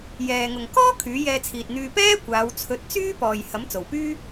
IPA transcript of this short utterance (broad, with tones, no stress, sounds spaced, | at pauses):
j ɛː˨ ŋ ʊ˨ ŋ k ɔː˥ kʰ yː˨˥ j ɛː˧ t͡sʰ iː˨ t̚ n̪ yː˧ p ɛː˥ kʷ aː˨˧ w t͡sʰ ɵ˨˥ t̚ t͡s yː˥ p ɔː˨ j h ɐ˨˥ m t͡s o˨˩ w p yː˥